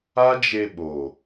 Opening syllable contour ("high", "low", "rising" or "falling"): high